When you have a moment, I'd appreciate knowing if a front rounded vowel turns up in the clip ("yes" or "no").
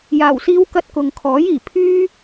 yes